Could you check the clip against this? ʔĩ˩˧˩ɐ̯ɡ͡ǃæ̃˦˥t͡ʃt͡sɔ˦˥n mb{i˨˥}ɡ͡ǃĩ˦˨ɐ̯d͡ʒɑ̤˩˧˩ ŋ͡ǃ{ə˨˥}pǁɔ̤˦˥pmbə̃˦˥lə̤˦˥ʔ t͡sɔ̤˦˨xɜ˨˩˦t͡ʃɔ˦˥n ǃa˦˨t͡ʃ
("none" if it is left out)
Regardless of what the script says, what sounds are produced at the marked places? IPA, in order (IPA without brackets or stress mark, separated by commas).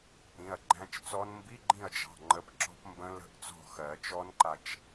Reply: i˧˥˧, ə˨˥